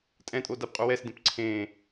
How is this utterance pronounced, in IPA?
tʼ ɛ̃ tʼ o d a p qʼ u w ɛ s d ẽ p ǀʰ ẽ

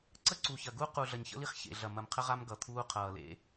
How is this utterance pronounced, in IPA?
ǀ ə˦ ǀ u˨ ç ɐ˨ ɡ u˦ q u˨ ɮ ɐ˨ ɲ ç ə̰˦ l i˦ χ ç ḛ˨ ɮ ɐ˨ m ɐ˨ m qʰ ə˦ ʁ a˦ m ɡ ʌ˨ t̪ʰ uː˦ qʰ ʌː˨ l ḛ˦

